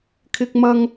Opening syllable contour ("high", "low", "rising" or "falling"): high